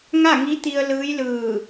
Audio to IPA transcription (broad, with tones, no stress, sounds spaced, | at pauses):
ŋ a˥˨ ŋ i˧˥ t̪ i˧ ə̯ l ɯː˧˥ j l ɯː˧˩